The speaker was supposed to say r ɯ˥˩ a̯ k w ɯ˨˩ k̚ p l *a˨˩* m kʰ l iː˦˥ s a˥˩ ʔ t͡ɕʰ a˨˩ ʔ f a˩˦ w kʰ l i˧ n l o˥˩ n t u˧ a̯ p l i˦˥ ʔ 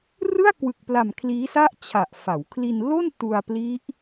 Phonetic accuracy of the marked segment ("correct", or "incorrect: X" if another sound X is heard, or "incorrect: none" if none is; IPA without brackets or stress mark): correct